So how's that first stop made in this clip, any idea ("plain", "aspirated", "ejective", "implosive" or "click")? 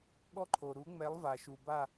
implosive